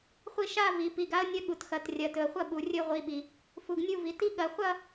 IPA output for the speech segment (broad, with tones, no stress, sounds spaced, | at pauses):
χʷ i˥˩ ʃ a˥˧ v i˩˧ p i˩˧˩ ɡ a˦˥ ə̯ nʲ ɐ˦˥ ɠ u˩˧˩ t x ɐ˩˧ t rʲ ɐ˩ t ɵ˩ ə̯ χʷ ɐ˥˩ ɓ u˩ rʲ ɵ˥˧ ʁʷ i˩˧˩ ɓ i˩ | f u˩˧ ɡ nʲ u˥˧ v i˩˧˩ t i˦˥ ɠ ɐ˩˧ χʷ ɐ˥˧